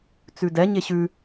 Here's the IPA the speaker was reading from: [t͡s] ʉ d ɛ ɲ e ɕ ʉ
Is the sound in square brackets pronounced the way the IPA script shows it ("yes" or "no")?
yes